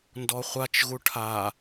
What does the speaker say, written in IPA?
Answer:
ndɔχʷat͡ʃ ɣuʈʰa

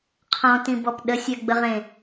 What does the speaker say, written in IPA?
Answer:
qʰɔ̃tĩbɔp ɗəsʲɜɡ͡bəʁẽ

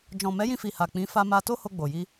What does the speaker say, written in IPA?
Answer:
d͡ʒɔ̃˨mɛ˨˦jĩ˧fi˨ ha˨k͡pĩ˨˦ fa˧ma˧to˦ ho˧ɡ͡bo˨ji˧

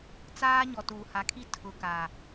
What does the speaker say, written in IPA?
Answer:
t͡saː˦ ɲɔ˨tuː˨ha˨˦kʰi˦ tʰʊ˨ ka˨

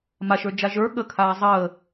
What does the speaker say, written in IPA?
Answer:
maʃə˞d͡ʒa ʒə˞ ɠəkʰaː zˤəː

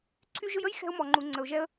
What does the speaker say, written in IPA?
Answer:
ǀʰy˧ʒɯ˧j ə˥j xɛ̤˧ʊ̯mɔ˩ŋ͡ǃu˩ ŋ͡ǀə˩ʊ̯ʒɛ˧ə̯

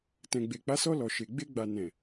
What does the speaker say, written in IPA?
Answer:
tɛ̃˨ɡ͡be˨k͡pa˨˦sɔ˧ lɔ˨ʃe˨ ɡ͡be˧ɡ͡ba˨ nɛ̃˨

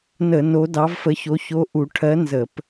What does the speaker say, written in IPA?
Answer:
nə˧˩˧ no˧˥dɑ˧˥vfə˧˥ço˧˥ ço˧˥ʔu˧˩˧ ʈʰɜ˧˥nzə˧˩˧p

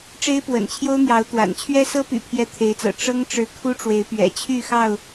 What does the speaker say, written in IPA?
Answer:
ʈ͡ʂe˦ɪ̯pwə̰˨˩nt͡ɕʰjo˦ʊ̯n̪jɑ˨˦ʊ̯ t̪wa̰˨˩n t͡ɕʰɥɛ˦sɤ˦py̰˨˩ pʰjɛ˥˨t̪ʰe˨˦ɪ̯t͡sɤ̰˨˩ ʈ͡ʂɤ˦ŋʈ͡ʂɻ̩˨˦ kʰu˦ʈ͡ʂwe˨˦ɪ̯pɥɛ̰˨˩ t͡ɕʰy˥˨xɑ˥˨ʊ̯

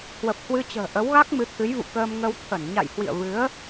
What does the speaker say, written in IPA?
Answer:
hwə˨˩p̚hwɨ˧t͡ɕə̤ː˨˩ ʔə˨˦wɣa˦˥k̚ mɨ˨˦t̪ʰɨ˨˦jvṵ˧˨ kəː˧mŋə˧w t̪ʰə˧˩n ɲa̰˧˨jhwḭ˧˨ə̯ vɨ˨˦ə̯

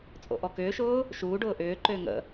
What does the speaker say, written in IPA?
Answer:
t͡sʼo̰ʔɔkʏːʃʊː | ʃuː ɖʊːʔʏːǃʏː ŋə̰

